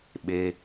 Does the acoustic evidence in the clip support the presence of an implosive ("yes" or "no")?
yes